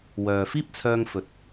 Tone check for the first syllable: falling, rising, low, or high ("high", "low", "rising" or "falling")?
low